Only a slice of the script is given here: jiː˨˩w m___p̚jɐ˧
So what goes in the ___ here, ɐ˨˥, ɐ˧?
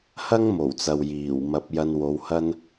ɐ˨˥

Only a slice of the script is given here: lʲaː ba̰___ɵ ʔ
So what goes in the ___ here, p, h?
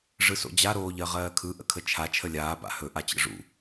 h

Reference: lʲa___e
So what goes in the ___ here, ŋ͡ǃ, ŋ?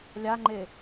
ŋ͡ǃ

